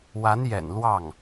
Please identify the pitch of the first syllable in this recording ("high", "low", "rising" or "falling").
rising